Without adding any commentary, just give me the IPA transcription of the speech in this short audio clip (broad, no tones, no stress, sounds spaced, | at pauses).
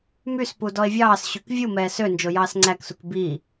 m y s p u d ɔ e̯ vʲ ɑː s ɕ y k vʲ u m ɛː s ø n d͡ʒ o j ɑː s ŋ͡ǀ æ k s u k b i